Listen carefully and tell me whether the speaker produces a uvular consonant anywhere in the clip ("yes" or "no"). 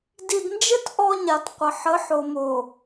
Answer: yes